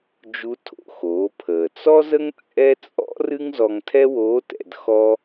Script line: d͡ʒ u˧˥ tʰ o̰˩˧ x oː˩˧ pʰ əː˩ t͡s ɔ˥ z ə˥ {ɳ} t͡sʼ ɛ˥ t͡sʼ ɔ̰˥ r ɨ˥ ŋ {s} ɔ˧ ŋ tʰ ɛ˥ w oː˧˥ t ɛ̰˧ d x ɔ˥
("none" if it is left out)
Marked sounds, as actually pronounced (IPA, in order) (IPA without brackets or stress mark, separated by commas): ŋ, z